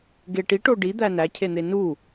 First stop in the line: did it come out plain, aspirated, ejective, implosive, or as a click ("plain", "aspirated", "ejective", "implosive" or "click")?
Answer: plain